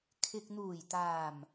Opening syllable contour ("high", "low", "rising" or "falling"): low